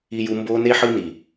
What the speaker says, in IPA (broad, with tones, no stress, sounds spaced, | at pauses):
i˧ j u˧ m b oː˧ n e˧ ħ ɯ˧ n i˨